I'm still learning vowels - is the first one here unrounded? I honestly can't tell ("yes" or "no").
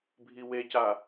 yes